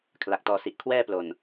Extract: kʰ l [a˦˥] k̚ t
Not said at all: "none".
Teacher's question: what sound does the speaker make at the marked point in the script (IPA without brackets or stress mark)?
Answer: a˨˩